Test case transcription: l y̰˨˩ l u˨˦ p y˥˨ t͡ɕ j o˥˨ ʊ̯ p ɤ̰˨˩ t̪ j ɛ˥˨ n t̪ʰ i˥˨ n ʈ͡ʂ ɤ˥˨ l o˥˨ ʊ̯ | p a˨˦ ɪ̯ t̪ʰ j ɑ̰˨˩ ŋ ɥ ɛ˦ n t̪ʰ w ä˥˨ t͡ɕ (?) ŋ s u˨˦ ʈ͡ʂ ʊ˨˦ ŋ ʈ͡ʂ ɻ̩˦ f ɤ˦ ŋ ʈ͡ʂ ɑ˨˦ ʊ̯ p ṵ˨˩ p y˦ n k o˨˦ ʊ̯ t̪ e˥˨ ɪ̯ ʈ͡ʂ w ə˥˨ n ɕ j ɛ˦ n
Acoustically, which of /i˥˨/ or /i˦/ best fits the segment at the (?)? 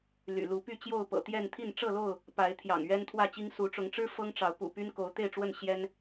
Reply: i˦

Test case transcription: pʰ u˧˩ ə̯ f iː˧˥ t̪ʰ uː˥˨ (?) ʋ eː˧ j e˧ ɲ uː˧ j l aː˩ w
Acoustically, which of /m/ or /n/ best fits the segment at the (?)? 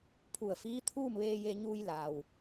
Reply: m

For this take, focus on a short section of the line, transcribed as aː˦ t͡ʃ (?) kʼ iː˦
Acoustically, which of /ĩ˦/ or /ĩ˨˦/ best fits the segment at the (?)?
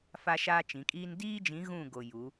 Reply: ĩ˨˦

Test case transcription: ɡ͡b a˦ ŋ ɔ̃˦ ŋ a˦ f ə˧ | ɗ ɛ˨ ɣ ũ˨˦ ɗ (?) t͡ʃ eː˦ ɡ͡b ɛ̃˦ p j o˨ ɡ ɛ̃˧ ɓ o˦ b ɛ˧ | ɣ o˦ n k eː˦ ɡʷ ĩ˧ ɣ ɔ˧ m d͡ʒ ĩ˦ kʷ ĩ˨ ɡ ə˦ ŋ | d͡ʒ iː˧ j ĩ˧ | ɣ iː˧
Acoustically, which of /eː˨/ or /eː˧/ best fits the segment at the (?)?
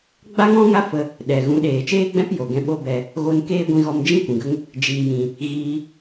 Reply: eː˨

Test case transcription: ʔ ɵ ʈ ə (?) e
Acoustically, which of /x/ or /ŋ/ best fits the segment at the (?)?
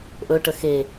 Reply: x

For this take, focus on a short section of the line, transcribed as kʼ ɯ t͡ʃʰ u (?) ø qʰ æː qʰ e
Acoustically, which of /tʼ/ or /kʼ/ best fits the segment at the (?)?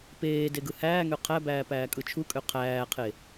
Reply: kʼ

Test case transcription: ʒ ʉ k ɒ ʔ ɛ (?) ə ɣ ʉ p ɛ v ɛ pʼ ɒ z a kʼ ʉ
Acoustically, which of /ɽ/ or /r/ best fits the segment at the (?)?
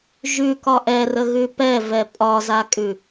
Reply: r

